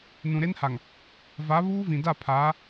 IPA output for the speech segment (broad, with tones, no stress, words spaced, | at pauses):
nũ˨ɾe˦nha˨ŋ | va˨˦ βuː˦vĩ˨da˦˨ pʰaː˨˦